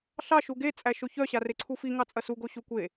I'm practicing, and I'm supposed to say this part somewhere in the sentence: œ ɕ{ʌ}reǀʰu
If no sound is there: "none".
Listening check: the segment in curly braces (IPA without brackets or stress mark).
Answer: a